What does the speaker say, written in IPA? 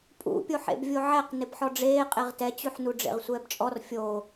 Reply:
pʼṵpʲoħḛb vʲoʕɛq nɪbħɔɖ͡ʐeː qʼeʁtɛt͡ɕʉħnu ɖ͡ʐḛʁsʷɛːbt͡ʃʼɔr fʲo

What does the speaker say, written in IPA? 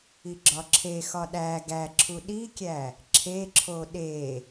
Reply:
iɡ͡ǁɒǁʰexɒ ɗæ ɡæǁʰu ɗikʲæ | ǁʰeǁʰo ɗe

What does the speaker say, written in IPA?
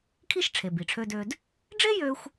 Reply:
kʰi˥ʃʈ͡ʂʰe˩ bi˩ʈ͡ʂʰø˧dø˧d | ɖ͡ʐe˥jø˧xʷ

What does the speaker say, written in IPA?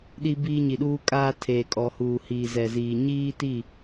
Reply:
ɗi˦biː˦ɲi˨ɗuː˦ kʼaː˦tʰeː˨kʼɔ˨huː˨ hiː˨zɛ˨ziː˨ ɲiː˦ti˦˨

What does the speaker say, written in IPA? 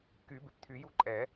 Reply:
ky˨˩˦bɪ˩p t̪ʰy˨˩˦ju˦ǃʼɛ˨˩˦

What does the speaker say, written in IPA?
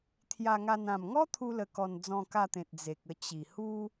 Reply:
t̪ʰja˧ŋa˧n ã˨˩mŋɔ˦ t̪ʰu˦lə˧kɔ˧n d͡zɔ̃˧ka˧t̪ẽ˨t̚ d͡ze˨k̚ə˧ t͡ɕi˨˩hu˦

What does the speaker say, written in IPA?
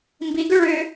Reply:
mbiɡʏ ɭʏ

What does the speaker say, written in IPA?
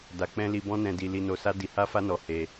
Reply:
da˧k͡pɛ̃˦ li˧bɔ̃˦nɛ̃˧ di˧ li˧no˧sa˦ di˧ha˦fa˦nɔ˧ he˧

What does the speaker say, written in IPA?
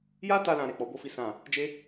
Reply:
ja˦ta˧ lã˧ɾe˨k͡pɔ˨˦ bo˦fi˦sã˦˨ | d͡ʒe˦

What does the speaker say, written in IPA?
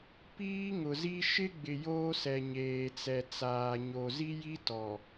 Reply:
piː˦ŋʊ˨zi˦ ʃɪ˦ɡ͡bɪ˨ joː˦sɛ˨ɲeː˨ t͡sɛ˨t͡saː˨ ɲo˨ zi˦ji˦tɔ˨

